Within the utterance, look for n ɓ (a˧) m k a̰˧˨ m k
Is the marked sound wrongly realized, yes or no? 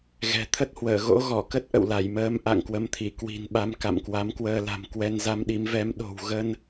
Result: yes